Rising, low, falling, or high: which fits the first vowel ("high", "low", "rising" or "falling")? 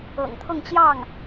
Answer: low